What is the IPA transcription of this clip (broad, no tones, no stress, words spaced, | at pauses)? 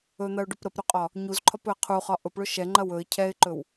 ɵn̪ɐʊ̯ɖʊp ɾəpɾɵqʼɒ | ɲuzǃʰɒpɵə̯ qʰuχɒ ʔʊpɭʊ ʃɛŋ͡ǃɐ wɵɪ̯ cʰɛɪ̯ǃɵw